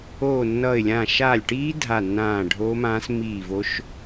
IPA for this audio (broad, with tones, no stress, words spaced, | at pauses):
oː˧˩nːʌː˧˩ɪ̯lʲãː˧˩ ʃaː˧˩lʲʈiː˦˥ dʱa˧˩nːãː˧˩ ɖʱoː˦˥mãː˦˥s miː˧˩ vo˦˥ʃ